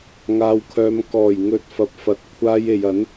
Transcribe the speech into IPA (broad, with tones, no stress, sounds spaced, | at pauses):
ŋ aː˧ w kʰ œː˧ m k ɔː˨˩ j ŋ ɵ˨˥ t̚ f ɐ˨ p̚ f ɐ˨ t̚ kʷʰ aː˧ j e˨ j ɐ˨˥ n